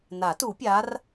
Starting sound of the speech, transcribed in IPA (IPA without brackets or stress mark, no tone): n